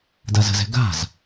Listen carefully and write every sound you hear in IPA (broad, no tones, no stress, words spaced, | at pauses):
dazə̤zɛ̤ ɡa̤z